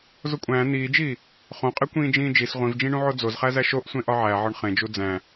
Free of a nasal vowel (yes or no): no